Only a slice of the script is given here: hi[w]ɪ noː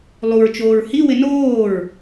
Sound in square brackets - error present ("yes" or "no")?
no